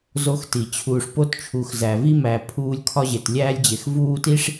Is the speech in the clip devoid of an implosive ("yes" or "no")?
yes